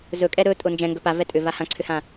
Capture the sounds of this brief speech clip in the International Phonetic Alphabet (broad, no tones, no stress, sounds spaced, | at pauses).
z ɵ kʼ ɛ ɾ ɵ tʼ ʊ n d͡ʒ ɛ̃ ŋ ɡ ɵ p a v ɛ tʼ ʏ v a h ã ǀʰ ʏ h ã